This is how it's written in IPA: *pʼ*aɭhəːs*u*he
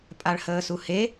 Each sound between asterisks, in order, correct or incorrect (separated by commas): correct, correct